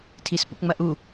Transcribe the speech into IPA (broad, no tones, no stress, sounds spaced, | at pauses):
tʰ i s p ṵ p ŋ͡m ɐ ʔ u